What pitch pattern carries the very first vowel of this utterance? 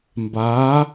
rising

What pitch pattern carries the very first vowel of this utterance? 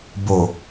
low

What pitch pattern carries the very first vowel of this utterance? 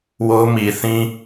high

